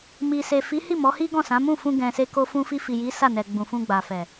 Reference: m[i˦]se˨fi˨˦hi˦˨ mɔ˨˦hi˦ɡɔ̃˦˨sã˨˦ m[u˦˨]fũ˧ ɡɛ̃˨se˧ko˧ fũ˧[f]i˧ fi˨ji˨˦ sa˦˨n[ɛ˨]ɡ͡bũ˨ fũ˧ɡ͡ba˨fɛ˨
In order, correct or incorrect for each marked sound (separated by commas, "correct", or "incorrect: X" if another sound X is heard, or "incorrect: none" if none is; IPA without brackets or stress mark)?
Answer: incorrect: i˨, incorrect: ũ˦˨, correct, correct